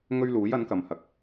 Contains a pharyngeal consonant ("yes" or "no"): no